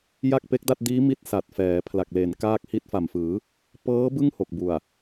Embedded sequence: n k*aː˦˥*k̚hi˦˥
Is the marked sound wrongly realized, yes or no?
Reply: no